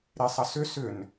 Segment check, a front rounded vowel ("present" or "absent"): present